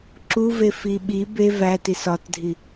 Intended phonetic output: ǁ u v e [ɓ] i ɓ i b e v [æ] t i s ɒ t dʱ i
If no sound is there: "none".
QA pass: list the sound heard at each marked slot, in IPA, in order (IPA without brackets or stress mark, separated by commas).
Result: f, æ